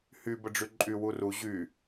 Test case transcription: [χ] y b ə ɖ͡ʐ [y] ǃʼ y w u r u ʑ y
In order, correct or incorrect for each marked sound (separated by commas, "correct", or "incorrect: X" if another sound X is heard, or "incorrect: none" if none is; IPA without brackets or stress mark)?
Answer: incorrect: h, correct